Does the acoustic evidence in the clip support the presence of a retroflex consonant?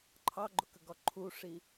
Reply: yes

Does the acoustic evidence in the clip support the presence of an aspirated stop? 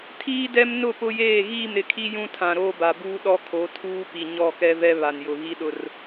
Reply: yes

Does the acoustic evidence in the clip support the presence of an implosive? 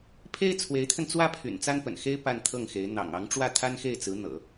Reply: no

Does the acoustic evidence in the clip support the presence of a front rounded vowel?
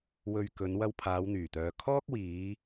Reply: yes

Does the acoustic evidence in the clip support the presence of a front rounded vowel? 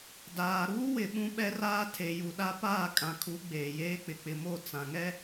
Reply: no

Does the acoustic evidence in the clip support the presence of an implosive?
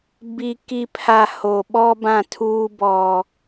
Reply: yes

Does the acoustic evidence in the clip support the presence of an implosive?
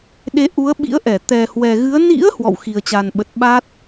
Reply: yes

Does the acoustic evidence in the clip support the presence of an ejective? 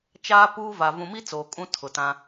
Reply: yes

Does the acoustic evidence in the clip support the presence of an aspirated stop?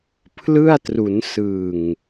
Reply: yes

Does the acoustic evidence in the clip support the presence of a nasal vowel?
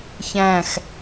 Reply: yes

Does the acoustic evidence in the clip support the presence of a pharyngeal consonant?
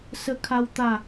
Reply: no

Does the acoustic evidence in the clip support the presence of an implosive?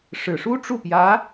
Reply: no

